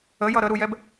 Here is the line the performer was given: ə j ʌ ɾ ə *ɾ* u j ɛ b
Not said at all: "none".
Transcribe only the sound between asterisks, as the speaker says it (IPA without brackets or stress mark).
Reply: ɾ